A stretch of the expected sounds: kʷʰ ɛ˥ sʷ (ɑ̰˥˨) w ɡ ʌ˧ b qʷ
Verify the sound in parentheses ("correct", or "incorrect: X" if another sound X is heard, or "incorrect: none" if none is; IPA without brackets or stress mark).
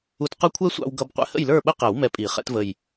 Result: incorrect: ɑ̰˧